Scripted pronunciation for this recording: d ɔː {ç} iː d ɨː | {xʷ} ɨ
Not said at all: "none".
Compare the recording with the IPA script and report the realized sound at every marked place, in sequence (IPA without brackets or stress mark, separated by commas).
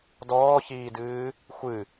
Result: ç, xʷ